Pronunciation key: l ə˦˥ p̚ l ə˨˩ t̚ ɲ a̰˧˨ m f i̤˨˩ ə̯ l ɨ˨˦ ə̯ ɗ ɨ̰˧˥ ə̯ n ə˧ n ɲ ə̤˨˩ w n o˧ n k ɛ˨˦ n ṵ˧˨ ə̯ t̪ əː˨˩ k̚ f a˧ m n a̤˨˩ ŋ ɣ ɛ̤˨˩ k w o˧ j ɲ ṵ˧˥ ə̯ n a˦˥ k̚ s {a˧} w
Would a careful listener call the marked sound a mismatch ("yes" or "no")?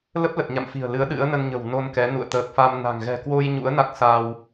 no